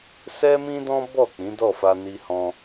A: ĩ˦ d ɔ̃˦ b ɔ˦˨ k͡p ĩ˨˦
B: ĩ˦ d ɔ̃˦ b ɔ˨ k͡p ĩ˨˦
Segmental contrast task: A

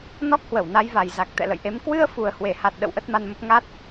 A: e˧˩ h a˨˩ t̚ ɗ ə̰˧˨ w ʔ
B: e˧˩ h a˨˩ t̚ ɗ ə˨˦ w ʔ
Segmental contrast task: A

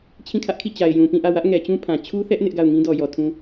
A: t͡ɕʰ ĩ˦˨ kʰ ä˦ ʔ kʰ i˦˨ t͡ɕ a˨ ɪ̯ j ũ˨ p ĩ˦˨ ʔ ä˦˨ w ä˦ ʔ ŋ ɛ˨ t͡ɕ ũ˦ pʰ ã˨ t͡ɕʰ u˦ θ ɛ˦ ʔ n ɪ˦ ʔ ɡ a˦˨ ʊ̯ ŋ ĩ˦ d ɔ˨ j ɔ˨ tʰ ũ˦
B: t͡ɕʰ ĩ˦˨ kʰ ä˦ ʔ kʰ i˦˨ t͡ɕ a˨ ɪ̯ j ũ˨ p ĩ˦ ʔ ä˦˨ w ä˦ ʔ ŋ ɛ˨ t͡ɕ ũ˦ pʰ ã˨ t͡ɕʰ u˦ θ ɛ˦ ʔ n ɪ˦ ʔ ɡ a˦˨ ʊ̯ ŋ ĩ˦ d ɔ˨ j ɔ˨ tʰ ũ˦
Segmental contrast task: A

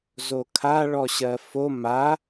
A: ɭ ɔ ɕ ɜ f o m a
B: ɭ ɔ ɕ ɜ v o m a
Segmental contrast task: A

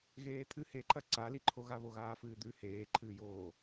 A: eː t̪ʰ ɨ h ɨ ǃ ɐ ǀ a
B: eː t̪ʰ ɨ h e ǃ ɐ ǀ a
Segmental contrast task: B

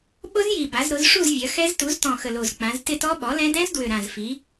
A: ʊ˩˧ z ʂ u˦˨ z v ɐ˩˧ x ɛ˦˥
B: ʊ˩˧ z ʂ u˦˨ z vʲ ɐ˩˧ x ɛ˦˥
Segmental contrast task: B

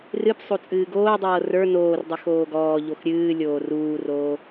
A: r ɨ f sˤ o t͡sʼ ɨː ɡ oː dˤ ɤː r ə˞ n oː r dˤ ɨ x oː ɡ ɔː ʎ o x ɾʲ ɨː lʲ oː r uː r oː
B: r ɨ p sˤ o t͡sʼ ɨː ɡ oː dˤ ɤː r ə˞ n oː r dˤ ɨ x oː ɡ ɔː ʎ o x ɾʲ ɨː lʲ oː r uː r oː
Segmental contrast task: B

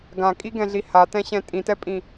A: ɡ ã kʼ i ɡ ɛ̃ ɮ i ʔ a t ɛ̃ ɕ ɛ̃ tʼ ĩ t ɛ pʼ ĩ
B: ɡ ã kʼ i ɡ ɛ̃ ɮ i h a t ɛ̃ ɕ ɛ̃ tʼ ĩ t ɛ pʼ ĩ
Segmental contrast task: B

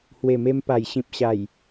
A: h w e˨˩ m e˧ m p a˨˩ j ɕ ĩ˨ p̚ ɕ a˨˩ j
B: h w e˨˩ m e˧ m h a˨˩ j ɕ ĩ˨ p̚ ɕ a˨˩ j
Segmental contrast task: A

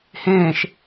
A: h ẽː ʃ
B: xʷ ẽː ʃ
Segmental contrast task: A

